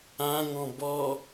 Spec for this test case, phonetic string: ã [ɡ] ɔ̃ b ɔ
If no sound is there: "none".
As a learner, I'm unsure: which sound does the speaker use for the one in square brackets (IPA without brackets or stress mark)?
ŋ